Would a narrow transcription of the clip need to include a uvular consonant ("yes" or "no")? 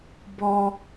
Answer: no